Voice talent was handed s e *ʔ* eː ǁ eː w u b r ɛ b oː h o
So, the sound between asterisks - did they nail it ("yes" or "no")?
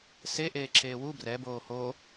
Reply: yes